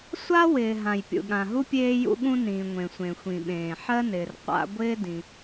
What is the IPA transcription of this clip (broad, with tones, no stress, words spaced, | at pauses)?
sʷa˥wɪː˩ ɦã˩jpʲṵ˩ɠã˩ɦu˥ pʲeː˥jṵ˥ɠũ˥nĩː˩ ŋʷẽ˩sʷẽ˩ xʷĩ˩ɓẽː˩ ħɜ˥nɪː˩r qʷa̰˥ ɡʷɪː˥dĩ˩